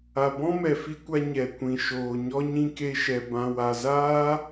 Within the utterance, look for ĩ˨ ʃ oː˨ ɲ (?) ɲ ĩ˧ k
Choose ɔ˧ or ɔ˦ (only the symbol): ɔ˦